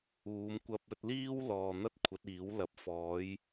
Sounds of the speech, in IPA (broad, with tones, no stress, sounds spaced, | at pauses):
uː˨˧ m kʷ ɐ˧ p̚ ɵ˧ t̚ l iː˥ w l ɔː˨ n̪ ɐ˥ t̚ kʷʰ ɐ˨˥ t̚ iː˨˥ w l ɐ˨ p̚ f ɔː˨˥ j